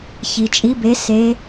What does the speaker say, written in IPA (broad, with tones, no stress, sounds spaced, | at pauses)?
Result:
ç i˩ t͡ʃʼ i˨˦ b e˨˦ s e˨˦